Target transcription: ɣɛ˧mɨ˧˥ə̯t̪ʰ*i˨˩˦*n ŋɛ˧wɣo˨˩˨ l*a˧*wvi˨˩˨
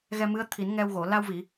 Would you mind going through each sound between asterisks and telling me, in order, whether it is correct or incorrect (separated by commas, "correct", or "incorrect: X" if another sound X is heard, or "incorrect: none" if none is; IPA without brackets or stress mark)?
correct, correct